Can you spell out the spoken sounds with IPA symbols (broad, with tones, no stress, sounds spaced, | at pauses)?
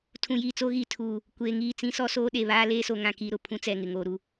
tʰ ũ˨ j iː˨ t͡s o˦ ɣ i˨ tʰ uː˨ | kʷ eː˨ ŋ iː˦˨ t͡s ĩ˦ s ɔ˦ s oː˦ ɗ e˨ β aː˦ l eː˦ s o˨ ŋ ã˦ k i˦ ɾ ʊ˨ pʰ ũ˦ t͡s ɛ˦˨ ŋ ɪ˨ ŋ oː˨ ɾ u˨